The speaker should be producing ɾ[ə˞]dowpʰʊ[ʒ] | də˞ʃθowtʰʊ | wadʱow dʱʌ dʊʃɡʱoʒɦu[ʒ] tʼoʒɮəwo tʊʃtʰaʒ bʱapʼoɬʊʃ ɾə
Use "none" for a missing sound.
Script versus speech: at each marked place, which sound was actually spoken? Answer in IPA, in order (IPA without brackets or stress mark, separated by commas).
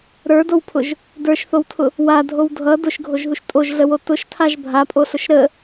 ə˞, ʒ, ʃ